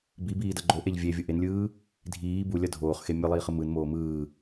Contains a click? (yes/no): yes